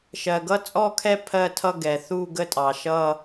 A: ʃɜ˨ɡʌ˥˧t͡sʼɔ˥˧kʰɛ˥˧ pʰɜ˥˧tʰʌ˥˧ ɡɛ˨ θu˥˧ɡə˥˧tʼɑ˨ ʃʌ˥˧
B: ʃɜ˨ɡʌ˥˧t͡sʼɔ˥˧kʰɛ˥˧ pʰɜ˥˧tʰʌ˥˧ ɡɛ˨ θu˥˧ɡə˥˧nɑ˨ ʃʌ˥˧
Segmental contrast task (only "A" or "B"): A